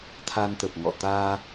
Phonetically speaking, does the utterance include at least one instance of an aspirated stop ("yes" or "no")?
yes